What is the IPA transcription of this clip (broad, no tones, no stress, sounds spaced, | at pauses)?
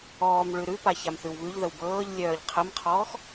ɔː m ɭ ʉ ɾ ʉ p a ç a m θ ʉ w β ʉ ʎ ð ə w b ɤː ʎ lʲ œː ʎ qʰ ə m qʰ ɔː x